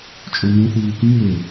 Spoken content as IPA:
t͡ʃʼ õ n ẽ θ uː k ĩ ŋ e

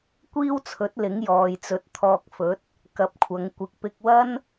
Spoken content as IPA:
kʷ iː˥ w t͡sʰ ɵ˨˥ t̚ l ɪ˨˥ ŋ j ɔː˨ j t͡s ɵ˨˥ t̚ t̪ʰ ɔː˧ k̚ f ɵ˨˥ t̚ | k ɐ˨˥ p̚ kʷʰ ɐ˨˧ ŋ kʷ ɪ˧ k̚ p ɪ˧ k̚ w ɐ˥ n

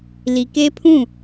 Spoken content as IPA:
l i˨ k e˦ pʰ ũ˦˨

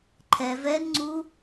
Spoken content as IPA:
ǃʰ ɛ v ɛ n ŋ͡ǀ u

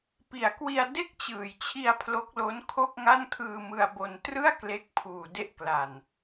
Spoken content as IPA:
p i˨˩ a̯ k w i˧ a̯ d e˥˩ k̚ t͡ɕ ɯː˨˩ j t͡ɕʰ i˧ a̯ pʰ l o˦˥ k̚ l o˦˥ n kʰ o˥˩ k̚ ŋ a˥˩ n kʰ ɯː˧ m ɯ˧ a̯ b o˧ n t r ɯ˥˩ a̯ k l e˦˥ k̚ pʰ uː˨˩ d e˦˥ ʔ k l a˨˩ n

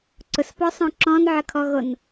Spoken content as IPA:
ǀ ʊ s p ɔ sˤ õ ǁ ɔ̃ n ʕ ə kʰ ɔ ɣ o n

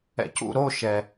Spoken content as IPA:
ɛ̰ c ṵ ɾ o ʃ ɛ

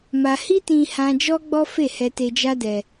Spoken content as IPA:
m a˧ h i˦ t ĩ˧ h ã˧ d͡ʒ ɔ˦ ɡ͡b ɔ˦ f e˦˨ h ɛ˧ t e˧ d͡ʒ a˦ d ɛ˧

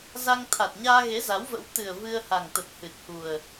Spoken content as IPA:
z a˧ ŋ t̪ʰ a˨˩ t̚ ɲ aː˧ ɣ e˨˦ z a˨˦ w v ə̰˧˥ w t̪ ɨ˨˩ ə̯ v ɨ˧ ə̯ h a˨˩ ŋ t̪ ə˨˩ t̚ h ɨ˨˩ t̚ h u˨˩ ə̯

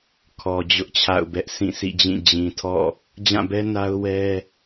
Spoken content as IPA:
kʰ ɔ˨ d͡ʑ ʊ˦ ʔ t͡ɕʰ a̰˦˨ ʊ̯ b ɛ˦ ʔ sʰ ĩ˦˨ s ḭ˦˨ d͡ʑ ĩ˦˨ d͡ʑ ĩ˨ tʰ ɔ̰˦˨ | d͡ʑ ã˦˨ b ɛ˦ n a˦ ʊ̯ w ɛ˦

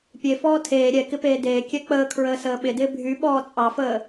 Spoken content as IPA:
pʲ e f ɔː tʰ eː ɾʲ ɛ k ɪ p eː d eː kʲ ɛ k͡p əː kʰ ɹ əː s əː ɓ ɪ d ɪː bʱ y ɓ ɔː t͡sʼ ɑ f əː

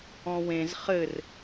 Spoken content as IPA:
ɔ̃ w ẽ z χ ɘ r

